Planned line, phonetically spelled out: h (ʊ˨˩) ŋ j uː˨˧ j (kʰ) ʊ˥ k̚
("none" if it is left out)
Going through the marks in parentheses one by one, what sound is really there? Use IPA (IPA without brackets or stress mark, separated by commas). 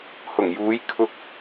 ʊ˨˩, kʰ